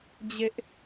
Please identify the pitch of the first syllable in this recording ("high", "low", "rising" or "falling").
high